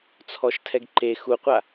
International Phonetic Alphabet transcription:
t͡sʰ ɔ ʃ tʰ ɛ ɡ ǃ e x u qʷ a

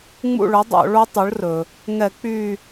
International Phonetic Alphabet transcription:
ŋ͡m ṵ˦˨ ɭ ɵ˩˥ dˤ o̰˧˩˧ ɭ o˦˥ tˤ o˩˥ ɭ r ɵ˩ | ŋ ɛ˧˩˧ k͡p y˦˨

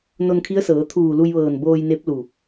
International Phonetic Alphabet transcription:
n o˧ n kʰ i˧˥ ə̯ s ɤː˩˧ t̪ʰ uː˧˩ l u˧ j ʋ ɤː˧˩ n b oː˧ j n e˧˥ p̚ l u˧˩

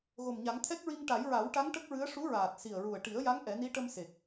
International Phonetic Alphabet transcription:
ɣ o˨˩ m ɲ a˨˩˦ ŋ t̪ʰ ɛ˦˥ k̚ ɹ i˧ ŋ ʈ a˨˩˦ j ɹ a˨˩˦ w ʈ a˧˥ ŋ ʈ ə˦˥ k̚ ɹ ɨ˧˥ ə̯ ʂ u˧˥ ɹ aː˨˩ t̚ s i˨˩ ə̯ ɹ u˨˩ ə̯ ʈ i˨˩˦ ə̯ j a˧˥ ŋ ʔ ɛ˨˩˦ n i˧˥ ʈ ə˧ m s e˨˩ k̚

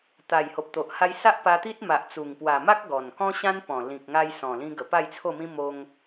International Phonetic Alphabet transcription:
t̪ a˨˩ j h o˨ p̚ t̪ o˨ ʔ h a˦ j s a˦ ʔ p a˧ t̪ i˦ t̚ m a˨ ʔ t͡s u˨˩ ŋ p w a˨˩ m a˦ k̚ ɡ ɔ˨˩ n k ɔ̃˦ ɕ ã˦ n p ɔ̃˨˩ l ĩ˨ k̚ ŋ a˧ j s ɔ̃˨˩ l ĩ˧ ɡ ə˨˩ p a˥˧ j t͡sʰ o˥˧ m ĩ˦ m o˦ ŋ

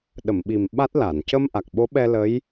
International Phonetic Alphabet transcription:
ɗ ə˨˩˨ m ɓ i˨˩ m ɓ a˦˥ t̚ l a˨˩˨ n c ə˧ m ʔ a˨˩ k̚ ɓ o˧˥ ɓ ɛ˧ l ə˧˥ j

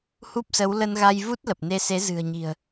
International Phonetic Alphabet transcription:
h u˦˥ p̚ s ə˨˦ w l ə˧ n ɣ a˧ j v u˦˥ t̚ l ə˨˩ p̚ n e˧ s e˨˦ z ɨ̤˨˩ ə̯ ɲ i̤˨˩ ə̯

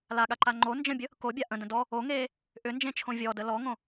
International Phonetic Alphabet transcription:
l a ɠ a ǃ a ŋ͡ǃ o n d͡ʒ ə̃ bʲ ə | k o bʲ a ʔ ə̃ d ə̃ d ɔ | o ŋ eː | ʔ ʏ n d͡ʒ ẽ t͡ʃʰ õ vʲ ɔ d ə l ɔ ŋ õ

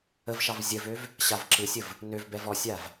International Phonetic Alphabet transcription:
ə v ʃ ɑ v zʲ ə v ø v | ɕ a v ǁ ɯ sʲ ə v | n ø v b ɛ v ɔ sʲ a v

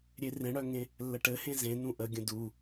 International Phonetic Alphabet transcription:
ɾʲ e r ẽ ɽ œ ŋ ẽ | lː ə ʈ ɘ h ẽ z ẽ n ũ ʔ ə ɡʲ ə̃ d u

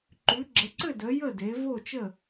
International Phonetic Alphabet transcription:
ǃ ʉ˨˦ ɡ͡ǁ ə˨˦ ǀ ɘ˥˨ d ə˨˦ j ə˥˨ d e˨˦ v o˥˨ t͡ʃ ə˥˨

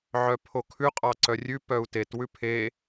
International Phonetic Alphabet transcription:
ʕ œ pʰ o kʰ ʉ qʼ ɑ ǀ œ rʲ ʉ p œ u̯ t e t w ʉ pʰ e

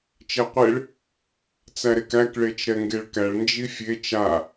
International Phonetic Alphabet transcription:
t͡ʃ ɛ qʷ e ɭ | t͡s æ ɾ e k æ k ɭ e t͡ʃ ɾ ɛ ŋ ɡ e ɭ k æ ɭ n d͡ʒ i fʲ e t͡ʃ a

